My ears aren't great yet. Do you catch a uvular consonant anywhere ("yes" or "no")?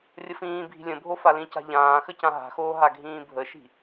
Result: no